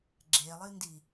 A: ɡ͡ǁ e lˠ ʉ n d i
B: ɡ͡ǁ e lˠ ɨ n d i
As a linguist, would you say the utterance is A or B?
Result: B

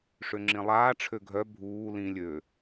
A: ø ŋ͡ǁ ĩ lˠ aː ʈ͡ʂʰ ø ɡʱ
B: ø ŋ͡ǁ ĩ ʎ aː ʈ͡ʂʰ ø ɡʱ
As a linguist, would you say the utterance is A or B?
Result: A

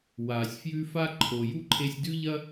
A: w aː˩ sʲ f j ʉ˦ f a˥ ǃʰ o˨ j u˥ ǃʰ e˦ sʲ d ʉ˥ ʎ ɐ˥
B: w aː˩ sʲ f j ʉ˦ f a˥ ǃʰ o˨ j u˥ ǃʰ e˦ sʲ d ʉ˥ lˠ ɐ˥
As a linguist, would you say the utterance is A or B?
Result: A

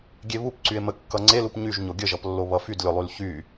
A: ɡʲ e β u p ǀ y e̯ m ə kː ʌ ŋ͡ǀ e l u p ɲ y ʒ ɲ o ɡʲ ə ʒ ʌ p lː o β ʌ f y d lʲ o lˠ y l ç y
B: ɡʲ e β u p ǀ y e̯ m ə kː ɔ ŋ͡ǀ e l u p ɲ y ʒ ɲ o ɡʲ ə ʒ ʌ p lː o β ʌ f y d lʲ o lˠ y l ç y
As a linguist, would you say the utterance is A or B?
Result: A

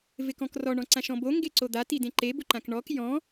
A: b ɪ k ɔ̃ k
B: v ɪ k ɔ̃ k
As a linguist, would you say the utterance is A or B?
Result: B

